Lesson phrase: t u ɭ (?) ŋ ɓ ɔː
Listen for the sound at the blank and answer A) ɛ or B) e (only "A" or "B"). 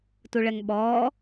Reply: A